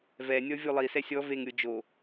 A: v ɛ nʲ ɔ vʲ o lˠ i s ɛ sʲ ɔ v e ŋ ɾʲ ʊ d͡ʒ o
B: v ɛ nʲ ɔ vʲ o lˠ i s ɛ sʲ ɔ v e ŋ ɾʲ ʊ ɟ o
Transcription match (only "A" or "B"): A